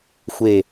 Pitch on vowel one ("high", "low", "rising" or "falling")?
low